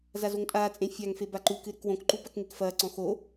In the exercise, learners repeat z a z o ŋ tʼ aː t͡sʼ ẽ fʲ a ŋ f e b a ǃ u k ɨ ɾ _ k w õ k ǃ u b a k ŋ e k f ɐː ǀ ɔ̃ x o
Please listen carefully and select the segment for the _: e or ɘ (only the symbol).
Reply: ɘ